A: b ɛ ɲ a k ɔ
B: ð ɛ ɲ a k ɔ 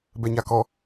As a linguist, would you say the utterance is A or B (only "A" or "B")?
A